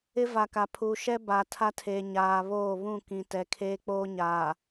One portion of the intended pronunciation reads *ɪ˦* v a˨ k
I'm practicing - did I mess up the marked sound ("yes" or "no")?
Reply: no